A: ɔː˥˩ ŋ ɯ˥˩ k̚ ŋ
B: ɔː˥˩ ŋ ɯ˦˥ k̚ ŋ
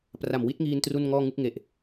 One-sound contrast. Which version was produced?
A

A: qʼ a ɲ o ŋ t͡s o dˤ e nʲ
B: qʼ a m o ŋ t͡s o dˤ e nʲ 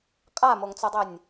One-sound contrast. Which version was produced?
B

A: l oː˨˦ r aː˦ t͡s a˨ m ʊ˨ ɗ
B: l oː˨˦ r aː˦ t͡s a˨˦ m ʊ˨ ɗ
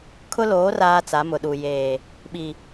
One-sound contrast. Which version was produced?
B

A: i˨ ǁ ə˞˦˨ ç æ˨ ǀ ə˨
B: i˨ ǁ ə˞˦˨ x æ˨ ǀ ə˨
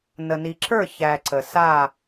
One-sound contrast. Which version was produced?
A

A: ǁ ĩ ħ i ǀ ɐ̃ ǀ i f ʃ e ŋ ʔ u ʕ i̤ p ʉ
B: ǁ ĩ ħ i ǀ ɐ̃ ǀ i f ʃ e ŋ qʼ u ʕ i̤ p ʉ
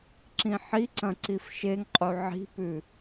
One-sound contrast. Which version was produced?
B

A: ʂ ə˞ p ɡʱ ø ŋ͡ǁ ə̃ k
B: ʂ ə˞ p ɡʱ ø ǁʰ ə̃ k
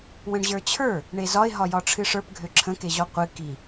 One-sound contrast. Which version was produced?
B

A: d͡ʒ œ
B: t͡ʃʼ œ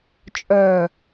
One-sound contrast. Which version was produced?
B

